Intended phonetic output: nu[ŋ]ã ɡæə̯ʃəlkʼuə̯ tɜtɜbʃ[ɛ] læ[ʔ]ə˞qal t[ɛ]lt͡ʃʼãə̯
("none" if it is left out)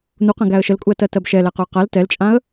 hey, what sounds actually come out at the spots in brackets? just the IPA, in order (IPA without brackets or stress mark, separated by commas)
q, ɛ, q, ɛ